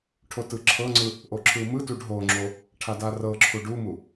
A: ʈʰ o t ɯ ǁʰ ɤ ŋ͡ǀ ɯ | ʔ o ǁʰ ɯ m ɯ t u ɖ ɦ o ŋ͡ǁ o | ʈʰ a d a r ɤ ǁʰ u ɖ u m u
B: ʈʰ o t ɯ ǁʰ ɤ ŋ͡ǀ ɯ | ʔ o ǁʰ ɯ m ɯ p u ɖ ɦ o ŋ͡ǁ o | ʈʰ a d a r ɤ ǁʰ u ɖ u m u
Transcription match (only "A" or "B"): A